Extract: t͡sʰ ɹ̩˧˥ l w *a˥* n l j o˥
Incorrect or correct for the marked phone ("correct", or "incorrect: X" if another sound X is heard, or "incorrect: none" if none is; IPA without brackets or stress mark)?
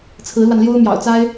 incorrect: a˧